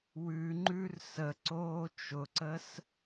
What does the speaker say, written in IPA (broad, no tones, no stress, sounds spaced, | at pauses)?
w ʉ ŋ͡ǃ ʉ r s ə ǀ oː t͡ʃ ʊ ǀ ə s